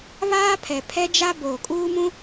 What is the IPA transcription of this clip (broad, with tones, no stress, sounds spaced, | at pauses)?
β aː˦ pʰ ɛ˨ pʰ ɛ˦ d͡ʒ a˦ b oː˨ kʼ uː˦ m ũ˦